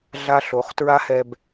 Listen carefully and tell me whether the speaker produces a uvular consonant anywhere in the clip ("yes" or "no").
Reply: yes